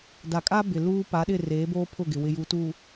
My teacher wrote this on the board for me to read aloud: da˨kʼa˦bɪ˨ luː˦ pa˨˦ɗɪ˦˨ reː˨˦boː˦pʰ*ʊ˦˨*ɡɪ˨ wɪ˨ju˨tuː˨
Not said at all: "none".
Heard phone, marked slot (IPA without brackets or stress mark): ʊ˦˨